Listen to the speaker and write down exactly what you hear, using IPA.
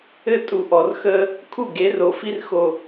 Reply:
ɘ˦˨ tʼ u˨ ʔ ɔ˨ r x əː˦ | kʰ u˦˨ ɡ e˨˦ r o˨ f i˦ r x o˨

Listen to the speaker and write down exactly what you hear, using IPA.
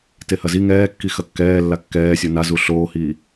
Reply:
t e h ɐ z i ŋ ɛː kː i x ɐ kː ɛː lː a kː ɛː sʲ o n a z u ɬ oː h iː

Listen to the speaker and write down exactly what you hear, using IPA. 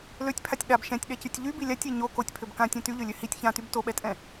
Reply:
l ø tʲ pʰ a tʲ ɗ a b ʃ ɛ̃ tʲ ɗ ɛ c y tʲ ʎ y b i lʲ a tʲ e ɲ o k o tʲ pʰ ø b k ã tʲ ɛ̃ t y ʎ ø lʲ ø h i tʲ ç ã t y b t o ɓ ɛ tʼ ɛ̃

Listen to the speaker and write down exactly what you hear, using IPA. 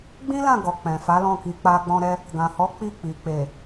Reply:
ɡ͡b ĩ˦ l ã˦˨ ɡ ɔ˨ k͡p ɛ̃˨ f a˨˦ l ɔ̃˦˨ k i˨˦ k͡p a˧ ɡ͡b ɔ̃˧ ɾ ɛ˧ | ɡ ã˨ h ɔ˨˦ k͡p i˦˨ k͡p i˨ k͡p e˨

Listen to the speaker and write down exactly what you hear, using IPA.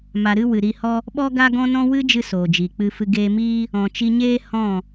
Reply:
m a˧ ɾ ɨ˦ w ɨ˨ ɾ i˧ h ɔ˦ | ɓ ɔ˦ ɡ a˦ ɡ ɔ̃˦ n ɔ̃˦ w ɨ˦ d͡ʒ ɨ˧ s oː˨ d͡ʒ i˨ k͡p ɨ˧ f ɨ˧ ɡ eː˧ m iː˦ | ɔ̃˨ t͡ʃ i˧ ɲ eː˦ h ɔ̃˦˨

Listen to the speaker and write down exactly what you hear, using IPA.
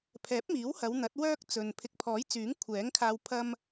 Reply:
pʰ ɛː˨˥ p̚ m iː˨˥ w h ɐ˨˧ w n̪ ɐ˨˥ t̚ w œː˥ k̚ t͡s ɵ˨ n pʰ ɪ˨˥ k̚ pʰ ɔː˨˥ j t͡s yː˨˥ ŋ kʷʰ ɛː˨˥ ŋ kʰ aː˧ w pʰ ɐ˥ m

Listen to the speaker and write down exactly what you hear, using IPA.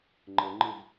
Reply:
ŋ͡ǃ ɤ ŋ͡ǃ ɯ v

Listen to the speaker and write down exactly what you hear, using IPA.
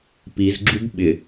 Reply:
p i z ɡ͡ǁ u b ɓ ɪ

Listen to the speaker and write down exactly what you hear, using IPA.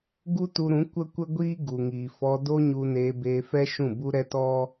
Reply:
ɡ u˦ t u˧ ɾ ũ˨˦ kʷ ə˦ kʷ ə˦ ɡʷ iː˦ ɡ u˨ ŋ iː˨ f ɔ˧ d o˦ ɲ u˧ n eː˧ b eː˧ f ɛ˦ ʃ ũ˦˨ b u˦ ɾ ɛ˦ t ɔ˦

